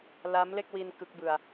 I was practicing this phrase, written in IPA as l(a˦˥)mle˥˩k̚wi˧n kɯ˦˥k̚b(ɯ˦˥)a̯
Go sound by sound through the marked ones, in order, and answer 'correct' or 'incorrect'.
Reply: correct, incorrect

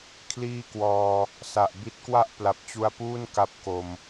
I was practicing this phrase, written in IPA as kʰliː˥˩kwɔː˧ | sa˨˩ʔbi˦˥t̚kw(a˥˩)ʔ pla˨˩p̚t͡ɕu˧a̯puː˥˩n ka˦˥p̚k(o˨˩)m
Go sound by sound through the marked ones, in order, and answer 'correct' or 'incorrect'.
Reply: correct, correct

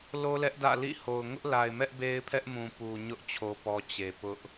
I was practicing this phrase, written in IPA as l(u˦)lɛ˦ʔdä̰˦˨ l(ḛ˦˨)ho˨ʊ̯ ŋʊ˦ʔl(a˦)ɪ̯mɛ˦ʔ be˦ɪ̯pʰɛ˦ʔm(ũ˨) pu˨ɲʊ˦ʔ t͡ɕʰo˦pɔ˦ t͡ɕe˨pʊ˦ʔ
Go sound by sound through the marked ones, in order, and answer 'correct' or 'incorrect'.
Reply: incorrect, incorrect, incorrect, correct

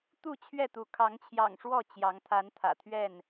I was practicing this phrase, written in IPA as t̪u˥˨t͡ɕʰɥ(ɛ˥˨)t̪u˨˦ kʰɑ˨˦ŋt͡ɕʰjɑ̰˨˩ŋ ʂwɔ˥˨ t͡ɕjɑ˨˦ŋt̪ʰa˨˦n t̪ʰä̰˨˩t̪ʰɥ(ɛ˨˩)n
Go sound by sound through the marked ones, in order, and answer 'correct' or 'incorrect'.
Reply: correct, incorrect

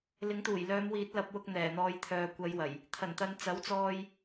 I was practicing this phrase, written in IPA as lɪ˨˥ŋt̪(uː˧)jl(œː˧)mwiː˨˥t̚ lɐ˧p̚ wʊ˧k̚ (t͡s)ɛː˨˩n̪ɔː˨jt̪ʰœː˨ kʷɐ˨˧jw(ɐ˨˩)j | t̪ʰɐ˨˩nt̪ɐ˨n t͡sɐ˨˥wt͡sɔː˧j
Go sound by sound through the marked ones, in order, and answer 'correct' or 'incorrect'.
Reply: incorrect, incorrect, incorrect, correct

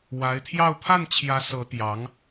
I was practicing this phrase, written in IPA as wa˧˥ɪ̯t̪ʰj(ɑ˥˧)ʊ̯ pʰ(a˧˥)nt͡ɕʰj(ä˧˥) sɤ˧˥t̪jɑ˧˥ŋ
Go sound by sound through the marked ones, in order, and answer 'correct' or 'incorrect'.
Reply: correct, incorrect, correct

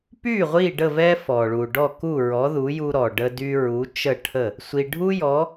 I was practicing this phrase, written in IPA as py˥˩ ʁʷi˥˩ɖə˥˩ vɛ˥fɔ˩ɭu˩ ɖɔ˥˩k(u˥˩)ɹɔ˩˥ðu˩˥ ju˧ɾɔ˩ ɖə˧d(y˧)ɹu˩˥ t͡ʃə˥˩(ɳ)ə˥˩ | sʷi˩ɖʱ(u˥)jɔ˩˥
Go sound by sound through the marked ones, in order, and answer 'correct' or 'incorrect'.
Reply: correct, correct, incorrect, correct

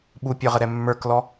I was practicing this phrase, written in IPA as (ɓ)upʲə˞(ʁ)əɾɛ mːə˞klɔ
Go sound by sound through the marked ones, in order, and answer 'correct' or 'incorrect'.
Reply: correct, correct

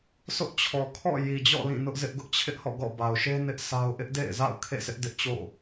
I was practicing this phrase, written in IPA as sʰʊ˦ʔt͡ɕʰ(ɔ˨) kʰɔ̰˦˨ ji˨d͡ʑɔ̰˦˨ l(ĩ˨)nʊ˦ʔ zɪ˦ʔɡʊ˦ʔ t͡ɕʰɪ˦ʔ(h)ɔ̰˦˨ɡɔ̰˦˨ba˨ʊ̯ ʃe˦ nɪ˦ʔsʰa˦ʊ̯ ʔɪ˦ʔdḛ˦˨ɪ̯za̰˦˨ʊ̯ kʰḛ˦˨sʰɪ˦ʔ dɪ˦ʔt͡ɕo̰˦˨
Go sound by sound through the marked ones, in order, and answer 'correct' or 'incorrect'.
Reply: correct, incorrect, correct

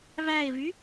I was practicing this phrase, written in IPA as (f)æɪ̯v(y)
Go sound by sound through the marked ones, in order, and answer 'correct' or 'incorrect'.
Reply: incorrect, correct

